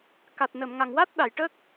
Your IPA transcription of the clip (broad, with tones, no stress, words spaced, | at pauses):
ka˨˩t̚nə˨˩˨mŋa˨˩ŋ wa˦˥t̚ ɗa˨˩˨jʈə˦˥k̚